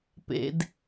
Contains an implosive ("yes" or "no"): no